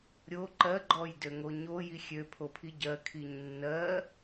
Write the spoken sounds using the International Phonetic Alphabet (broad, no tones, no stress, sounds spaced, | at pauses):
ɾʲ o ǃ ɜ ɡ͡ǃ ɔ j d ø ŋ o ɲ o j i xʲ ø pʰ o pʰ i ɟ ɜ kʰ i ɲ nː ɜ